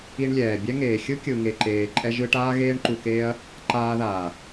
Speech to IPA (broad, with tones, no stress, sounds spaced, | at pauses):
i˧ ɳ lʲ ɛː˨ bʲ ɛ˦ ŋ eː˨ xʲ ɯ˦ kʲ ɯ˨ ŋ e˨ ǃ eː˨ ǃʼ ɛ˧ ʒ ɯ˧ ʈ aː˦ ɣ eː˦ ɳ ǃ u˧ k eː˦ ɐ̯ | ǃ aː˧ ð aː˨